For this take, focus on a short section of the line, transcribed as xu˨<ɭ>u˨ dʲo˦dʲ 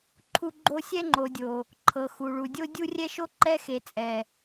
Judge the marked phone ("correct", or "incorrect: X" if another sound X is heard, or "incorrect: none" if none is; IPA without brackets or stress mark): correct